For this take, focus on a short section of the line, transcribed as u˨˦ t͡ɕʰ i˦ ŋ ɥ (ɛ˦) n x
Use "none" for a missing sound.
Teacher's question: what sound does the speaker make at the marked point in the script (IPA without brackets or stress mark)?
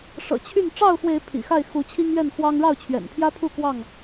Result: ɛ˥˨